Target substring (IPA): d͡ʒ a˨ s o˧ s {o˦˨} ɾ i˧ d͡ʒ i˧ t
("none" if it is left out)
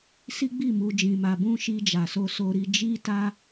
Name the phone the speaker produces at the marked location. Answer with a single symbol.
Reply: o˧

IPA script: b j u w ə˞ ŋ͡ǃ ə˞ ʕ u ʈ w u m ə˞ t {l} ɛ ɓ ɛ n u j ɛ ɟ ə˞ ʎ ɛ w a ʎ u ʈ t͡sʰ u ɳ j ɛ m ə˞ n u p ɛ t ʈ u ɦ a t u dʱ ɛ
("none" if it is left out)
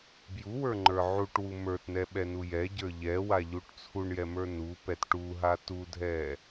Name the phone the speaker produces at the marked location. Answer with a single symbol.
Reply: n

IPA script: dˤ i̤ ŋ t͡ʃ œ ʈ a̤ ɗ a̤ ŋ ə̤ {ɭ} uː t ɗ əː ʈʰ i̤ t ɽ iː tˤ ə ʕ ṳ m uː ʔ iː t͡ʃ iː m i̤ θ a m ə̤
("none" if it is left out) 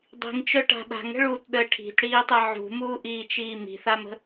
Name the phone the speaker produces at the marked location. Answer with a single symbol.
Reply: ɭ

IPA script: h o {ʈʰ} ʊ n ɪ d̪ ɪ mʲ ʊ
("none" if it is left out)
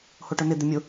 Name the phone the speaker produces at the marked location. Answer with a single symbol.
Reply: ʈ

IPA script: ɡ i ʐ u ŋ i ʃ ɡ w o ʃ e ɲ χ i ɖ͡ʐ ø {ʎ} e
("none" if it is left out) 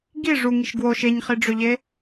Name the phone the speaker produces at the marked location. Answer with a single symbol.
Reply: ʎ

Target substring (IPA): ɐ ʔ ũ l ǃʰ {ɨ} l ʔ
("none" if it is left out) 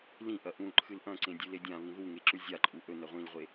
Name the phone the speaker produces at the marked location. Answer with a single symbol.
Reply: ɨ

